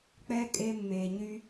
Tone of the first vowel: high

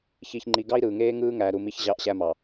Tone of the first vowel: low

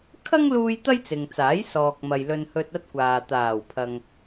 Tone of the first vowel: high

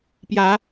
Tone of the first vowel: rising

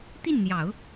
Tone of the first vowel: falling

